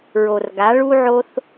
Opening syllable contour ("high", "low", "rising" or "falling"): low